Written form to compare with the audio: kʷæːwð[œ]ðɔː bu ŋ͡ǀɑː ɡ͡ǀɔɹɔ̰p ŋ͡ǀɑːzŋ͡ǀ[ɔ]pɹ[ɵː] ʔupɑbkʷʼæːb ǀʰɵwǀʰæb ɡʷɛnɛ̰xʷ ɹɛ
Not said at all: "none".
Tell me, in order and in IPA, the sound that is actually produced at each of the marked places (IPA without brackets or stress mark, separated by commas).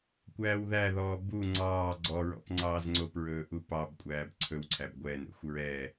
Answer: æ, o, ɵː